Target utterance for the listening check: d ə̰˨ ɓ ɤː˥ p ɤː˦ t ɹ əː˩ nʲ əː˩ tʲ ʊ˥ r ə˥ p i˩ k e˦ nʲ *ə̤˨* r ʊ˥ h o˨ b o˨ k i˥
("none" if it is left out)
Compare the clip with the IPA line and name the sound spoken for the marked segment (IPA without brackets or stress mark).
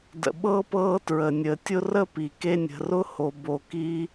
ə̤˨